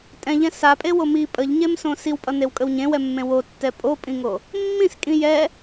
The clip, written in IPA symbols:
tʼ ɛ̃ ʎ ɛ̃ s a pʼ e w o m i pʼ ə ʎ ɲ e m s õ s i w pʼ ʌ n e w kʼ ə w ɲ ẽ w ɛ mː ẽ w o tː ɛ pʼ o pʼ ĩ ŋ o | mː ĩ s kʼ ĩ j ɛ

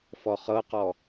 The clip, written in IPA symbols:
f ɔ χ ɤ q ɔ

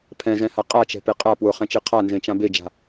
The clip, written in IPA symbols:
pʰ ɛ̃ z ɛ̃ h a qʼ a t͡ʃ ɛ̤ p e qʼ a p w ʊ χ ɛ̃ t͡ʃ e qʰ a n z ẽ t͡ʃ ã b e d͡ʒ a̤

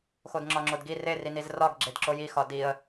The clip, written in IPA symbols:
x o d ŋ͡ǁ ɒ ŋ͡ǁ o d ɡ i r e r i n i z r ɒ ɡ ɡ͡ǁ e d ǁ o j i x ɒ d i ə̯

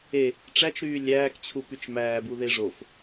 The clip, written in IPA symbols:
e | ʈ͡ʂ æ t͡ʃ ɾ yː lʲ æː k t͡ɕʰ u p y t͡ʃ m æː b u ð e ʐ o f

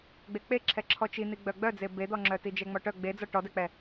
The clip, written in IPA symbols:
ɡ͡b e k͡p e ǁʰ ɛ ǁʰ ɔ t͡ʃ i n̪ i ɡ͡b œ ɡ͡b œ d͡z e b e d̪ ɔ ŋ͡ǁ œ t i d͡ʒ ɛ ŋ͡m ɔ ʈ œ ɡ͡b e d͡z ɔ ʈ ɔ d ɛ k͡p ɛ

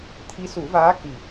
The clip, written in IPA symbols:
t̪ʰ i˧˥ s u˨˩˦ v aː˧˥ k i˨˩

